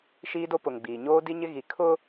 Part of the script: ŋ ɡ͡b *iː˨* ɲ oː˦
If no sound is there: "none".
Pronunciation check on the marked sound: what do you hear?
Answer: iː˨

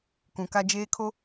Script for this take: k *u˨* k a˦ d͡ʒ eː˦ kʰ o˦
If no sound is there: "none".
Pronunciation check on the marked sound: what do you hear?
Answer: ũ˨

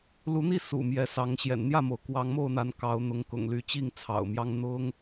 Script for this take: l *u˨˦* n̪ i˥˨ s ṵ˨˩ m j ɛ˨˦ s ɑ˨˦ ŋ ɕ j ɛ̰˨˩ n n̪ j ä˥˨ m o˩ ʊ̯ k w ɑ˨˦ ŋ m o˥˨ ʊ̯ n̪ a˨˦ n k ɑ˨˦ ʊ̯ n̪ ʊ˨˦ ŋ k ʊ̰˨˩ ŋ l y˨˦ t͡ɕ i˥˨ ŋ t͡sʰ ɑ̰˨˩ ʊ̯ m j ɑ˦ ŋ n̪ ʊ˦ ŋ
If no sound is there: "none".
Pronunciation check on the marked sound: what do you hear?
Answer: u˨˦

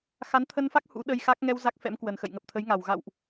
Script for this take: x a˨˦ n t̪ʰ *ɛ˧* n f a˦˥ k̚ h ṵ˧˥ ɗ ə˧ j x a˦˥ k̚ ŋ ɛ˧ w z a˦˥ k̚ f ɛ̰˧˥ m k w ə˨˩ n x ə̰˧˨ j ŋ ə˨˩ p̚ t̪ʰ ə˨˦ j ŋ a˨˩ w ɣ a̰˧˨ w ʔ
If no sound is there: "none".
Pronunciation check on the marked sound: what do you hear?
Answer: ə˧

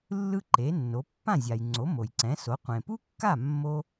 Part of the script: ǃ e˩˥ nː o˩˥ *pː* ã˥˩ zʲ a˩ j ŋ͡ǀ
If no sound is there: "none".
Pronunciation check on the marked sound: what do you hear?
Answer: pː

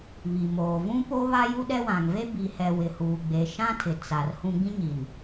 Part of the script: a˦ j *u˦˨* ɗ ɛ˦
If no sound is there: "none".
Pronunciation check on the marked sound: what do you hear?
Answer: u˦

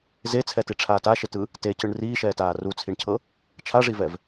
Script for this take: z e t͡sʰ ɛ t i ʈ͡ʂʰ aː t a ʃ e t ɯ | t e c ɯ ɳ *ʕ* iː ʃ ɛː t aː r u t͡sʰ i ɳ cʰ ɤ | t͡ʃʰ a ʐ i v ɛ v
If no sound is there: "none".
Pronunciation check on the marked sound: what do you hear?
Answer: r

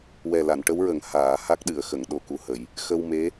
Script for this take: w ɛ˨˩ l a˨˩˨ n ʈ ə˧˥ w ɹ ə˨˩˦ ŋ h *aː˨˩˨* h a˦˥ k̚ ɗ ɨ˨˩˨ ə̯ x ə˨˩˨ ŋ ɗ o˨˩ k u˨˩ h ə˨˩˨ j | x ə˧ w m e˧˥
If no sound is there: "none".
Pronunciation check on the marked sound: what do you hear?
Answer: aː˨˩˨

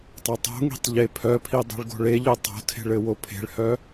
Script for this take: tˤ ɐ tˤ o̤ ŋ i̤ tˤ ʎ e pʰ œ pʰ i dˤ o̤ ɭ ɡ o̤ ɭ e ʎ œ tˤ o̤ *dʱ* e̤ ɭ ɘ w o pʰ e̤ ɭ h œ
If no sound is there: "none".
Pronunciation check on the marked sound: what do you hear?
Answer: tʰ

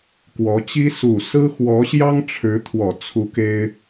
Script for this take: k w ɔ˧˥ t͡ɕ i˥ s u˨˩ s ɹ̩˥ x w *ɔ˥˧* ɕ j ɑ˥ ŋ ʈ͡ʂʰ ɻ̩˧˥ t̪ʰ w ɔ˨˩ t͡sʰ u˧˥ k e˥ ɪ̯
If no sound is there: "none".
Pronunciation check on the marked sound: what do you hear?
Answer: ɔ˧˥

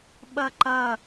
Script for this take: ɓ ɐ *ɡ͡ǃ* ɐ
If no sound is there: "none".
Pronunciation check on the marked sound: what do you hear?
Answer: ǃ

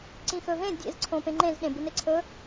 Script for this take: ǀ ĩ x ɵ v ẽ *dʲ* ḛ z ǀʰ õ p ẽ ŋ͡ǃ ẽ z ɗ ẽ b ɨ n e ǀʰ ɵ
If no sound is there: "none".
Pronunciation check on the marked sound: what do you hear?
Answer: dʲ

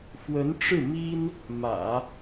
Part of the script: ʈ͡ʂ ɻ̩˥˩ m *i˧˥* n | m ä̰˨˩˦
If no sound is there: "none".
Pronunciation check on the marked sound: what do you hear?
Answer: i˥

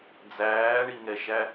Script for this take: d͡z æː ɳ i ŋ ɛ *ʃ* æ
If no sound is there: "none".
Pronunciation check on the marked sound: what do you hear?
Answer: ʃ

